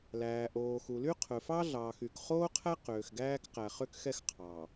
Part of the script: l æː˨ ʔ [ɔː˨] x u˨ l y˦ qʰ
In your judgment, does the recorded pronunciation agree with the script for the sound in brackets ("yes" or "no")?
no